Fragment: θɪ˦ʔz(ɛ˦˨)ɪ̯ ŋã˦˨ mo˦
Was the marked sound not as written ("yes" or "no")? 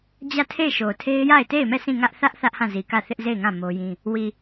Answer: yes